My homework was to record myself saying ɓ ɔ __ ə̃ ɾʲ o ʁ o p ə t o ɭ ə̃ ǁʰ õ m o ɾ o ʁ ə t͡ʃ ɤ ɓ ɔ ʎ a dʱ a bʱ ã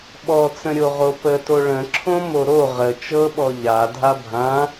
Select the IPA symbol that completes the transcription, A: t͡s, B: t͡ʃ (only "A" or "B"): A